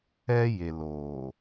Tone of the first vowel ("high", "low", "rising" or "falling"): high